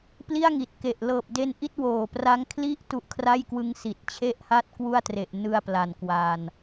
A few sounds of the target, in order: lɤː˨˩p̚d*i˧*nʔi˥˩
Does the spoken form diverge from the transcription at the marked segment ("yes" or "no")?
yes